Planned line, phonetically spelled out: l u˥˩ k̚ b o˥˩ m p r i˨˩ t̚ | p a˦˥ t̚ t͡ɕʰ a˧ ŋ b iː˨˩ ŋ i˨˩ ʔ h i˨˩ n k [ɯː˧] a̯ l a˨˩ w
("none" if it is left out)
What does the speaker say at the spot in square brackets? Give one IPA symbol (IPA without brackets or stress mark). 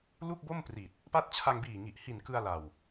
ɯ˧